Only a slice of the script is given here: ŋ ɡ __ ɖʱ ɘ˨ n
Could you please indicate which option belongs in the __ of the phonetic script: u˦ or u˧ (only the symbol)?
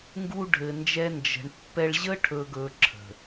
u˧